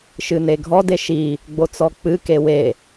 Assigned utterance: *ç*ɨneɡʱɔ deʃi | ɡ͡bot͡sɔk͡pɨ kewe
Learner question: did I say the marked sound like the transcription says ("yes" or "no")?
no